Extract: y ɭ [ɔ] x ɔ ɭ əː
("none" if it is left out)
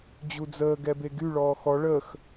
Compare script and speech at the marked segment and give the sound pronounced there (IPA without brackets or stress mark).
ɔː